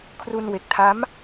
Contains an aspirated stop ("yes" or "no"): yes